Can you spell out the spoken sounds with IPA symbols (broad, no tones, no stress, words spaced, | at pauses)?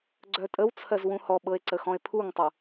ɡ͡ǀœtʼəwt͡sʰɜz wũhɔɓɤe̯ ǀəxɔ̃e̯pʰuŋtˤu